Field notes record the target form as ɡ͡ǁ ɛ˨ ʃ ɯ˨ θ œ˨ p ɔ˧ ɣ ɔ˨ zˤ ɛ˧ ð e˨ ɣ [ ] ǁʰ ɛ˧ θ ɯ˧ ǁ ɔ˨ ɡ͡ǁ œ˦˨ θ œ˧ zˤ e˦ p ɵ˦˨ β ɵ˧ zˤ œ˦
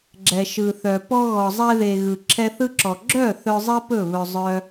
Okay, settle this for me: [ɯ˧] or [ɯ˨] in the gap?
ɯ˨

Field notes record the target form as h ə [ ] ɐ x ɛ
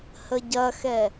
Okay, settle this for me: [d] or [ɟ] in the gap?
ɟ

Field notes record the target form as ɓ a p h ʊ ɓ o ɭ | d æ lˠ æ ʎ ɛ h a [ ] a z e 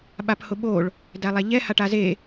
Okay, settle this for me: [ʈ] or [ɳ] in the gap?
ʈ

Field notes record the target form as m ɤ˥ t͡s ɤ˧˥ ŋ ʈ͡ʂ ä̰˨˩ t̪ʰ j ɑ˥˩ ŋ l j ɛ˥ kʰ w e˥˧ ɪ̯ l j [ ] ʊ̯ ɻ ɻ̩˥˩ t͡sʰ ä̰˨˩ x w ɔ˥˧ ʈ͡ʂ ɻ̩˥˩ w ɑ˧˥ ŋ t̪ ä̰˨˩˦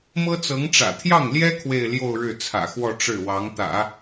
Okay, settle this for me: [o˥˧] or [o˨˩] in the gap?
o˥˧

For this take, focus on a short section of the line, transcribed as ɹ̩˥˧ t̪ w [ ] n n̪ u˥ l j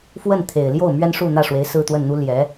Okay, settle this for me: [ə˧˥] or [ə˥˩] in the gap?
ə˥˩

